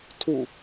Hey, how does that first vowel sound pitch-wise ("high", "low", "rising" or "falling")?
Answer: falling